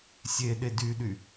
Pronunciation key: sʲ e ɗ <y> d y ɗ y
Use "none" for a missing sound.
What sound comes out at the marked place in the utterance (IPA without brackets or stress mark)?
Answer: e